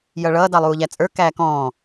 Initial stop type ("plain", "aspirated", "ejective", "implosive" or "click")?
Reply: plain